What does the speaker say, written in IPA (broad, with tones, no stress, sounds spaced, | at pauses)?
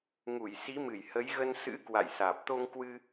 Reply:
ŋ u˧˩ j s i˨˦ m ɨ˧˩ j h ə˨˦ j ɣ ə˧ n s ɨ̰˧˥ k w a̰˧˨ j s aː˨˩ p̚ t̪ o˧ ŋ k w ɨ˧